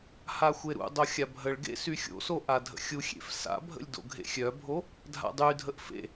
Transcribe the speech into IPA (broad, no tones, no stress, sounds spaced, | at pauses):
h a xʷ e ɾ ṵ dˤ o xʲ a bʱ ə ɭ ɡ ḛ s y xʲ o̰ s o ʔ a dʱ ə̰ xʲ u xʲ ḛ f s a̰ bʱ ə̰ lʲ d o̰ ɡʱ ḛ xʲ œ bʱ o | dʱ a̰ dˤ y dʱ ə ʔ f ḛ